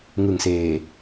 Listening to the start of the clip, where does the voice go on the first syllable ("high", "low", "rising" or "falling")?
low